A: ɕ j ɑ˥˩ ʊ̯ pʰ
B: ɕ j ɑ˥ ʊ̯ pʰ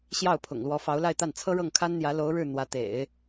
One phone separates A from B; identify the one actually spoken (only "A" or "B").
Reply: A